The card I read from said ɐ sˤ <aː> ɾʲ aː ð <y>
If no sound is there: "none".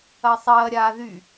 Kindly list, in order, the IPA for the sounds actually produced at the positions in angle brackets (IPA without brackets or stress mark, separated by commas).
ɐː, y